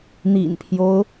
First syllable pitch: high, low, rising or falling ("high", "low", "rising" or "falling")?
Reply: low